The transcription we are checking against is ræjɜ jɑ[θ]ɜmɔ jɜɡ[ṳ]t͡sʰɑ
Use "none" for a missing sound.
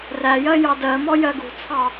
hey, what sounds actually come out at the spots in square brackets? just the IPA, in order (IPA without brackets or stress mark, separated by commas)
d, ṳ